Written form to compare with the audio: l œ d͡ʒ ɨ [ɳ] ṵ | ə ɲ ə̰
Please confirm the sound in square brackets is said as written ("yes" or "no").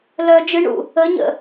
yes